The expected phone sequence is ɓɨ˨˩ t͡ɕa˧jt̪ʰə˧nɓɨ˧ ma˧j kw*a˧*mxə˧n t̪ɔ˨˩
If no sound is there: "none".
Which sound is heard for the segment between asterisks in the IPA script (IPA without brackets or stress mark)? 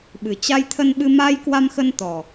a˧